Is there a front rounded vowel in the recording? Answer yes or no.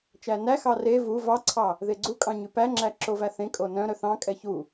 yes